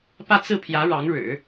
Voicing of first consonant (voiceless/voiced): voiceless